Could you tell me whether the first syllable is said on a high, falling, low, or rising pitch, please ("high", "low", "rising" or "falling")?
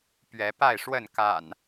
rising